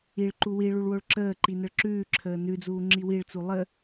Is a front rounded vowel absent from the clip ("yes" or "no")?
yes